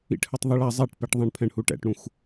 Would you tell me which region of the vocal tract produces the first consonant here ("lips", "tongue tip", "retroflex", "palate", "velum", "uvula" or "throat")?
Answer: retroflex